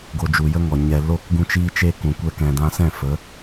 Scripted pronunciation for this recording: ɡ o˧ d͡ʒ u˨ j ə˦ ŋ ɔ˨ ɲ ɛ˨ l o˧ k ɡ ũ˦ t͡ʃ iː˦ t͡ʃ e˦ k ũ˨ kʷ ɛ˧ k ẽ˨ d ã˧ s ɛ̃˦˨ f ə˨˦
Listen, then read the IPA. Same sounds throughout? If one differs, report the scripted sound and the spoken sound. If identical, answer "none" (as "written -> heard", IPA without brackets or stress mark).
ẽ˨ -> ɛ̃˨